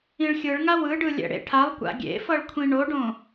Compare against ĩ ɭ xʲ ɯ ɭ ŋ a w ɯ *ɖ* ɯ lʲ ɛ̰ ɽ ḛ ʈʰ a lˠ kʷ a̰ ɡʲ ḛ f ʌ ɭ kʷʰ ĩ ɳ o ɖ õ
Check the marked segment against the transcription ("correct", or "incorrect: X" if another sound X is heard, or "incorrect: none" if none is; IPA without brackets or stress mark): correct